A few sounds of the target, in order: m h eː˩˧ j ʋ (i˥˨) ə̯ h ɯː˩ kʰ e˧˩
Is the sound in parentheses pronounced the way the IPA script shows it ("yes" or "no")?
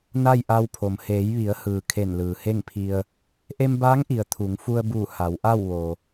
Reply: no